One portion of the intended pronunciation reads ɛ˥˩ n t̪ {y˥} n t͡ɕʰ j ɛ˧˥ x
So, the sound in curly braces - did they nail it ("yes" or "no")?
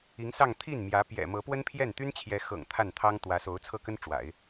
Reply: yes